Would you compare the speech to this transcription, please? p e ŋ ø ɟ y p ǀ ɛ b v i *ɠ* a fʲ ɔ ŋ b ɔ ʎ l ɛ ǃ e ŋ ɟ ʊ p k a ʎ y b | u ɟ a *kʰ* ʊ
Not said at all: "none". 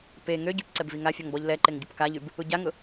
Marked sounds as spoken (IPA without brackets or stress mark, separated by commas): ŋ, ŋ